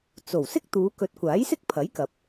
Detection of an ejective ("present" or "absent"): absent